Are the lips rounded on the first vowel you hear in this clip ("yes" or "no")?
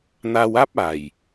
no